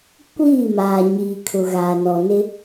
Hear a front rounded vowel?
no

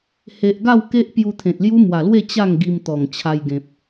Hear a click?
no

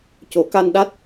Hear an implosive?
yes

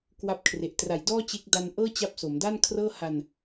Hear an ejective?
no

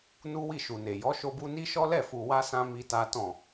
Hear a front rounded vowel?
no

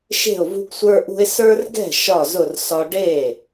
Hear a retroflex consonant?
yes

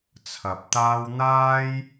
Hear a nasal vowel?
no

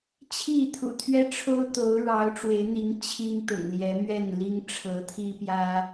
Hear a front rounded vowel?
no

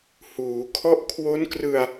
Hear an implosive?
no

